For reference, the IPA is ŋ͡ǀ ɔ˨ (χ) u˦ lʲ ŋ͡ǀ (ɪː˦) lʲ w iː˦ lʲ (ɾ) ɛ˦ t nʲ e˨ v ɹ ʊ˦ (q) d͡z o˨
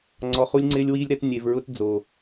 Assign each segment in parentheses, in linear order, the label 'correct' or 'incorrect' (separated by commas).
correct, correct, correct, incorrect